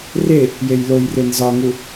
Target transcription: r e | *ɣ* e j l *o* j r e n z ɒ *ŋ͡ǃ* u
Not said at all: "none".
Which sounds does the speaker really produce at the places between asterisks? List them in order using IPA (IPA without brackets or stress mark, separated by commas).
j, o, ŋ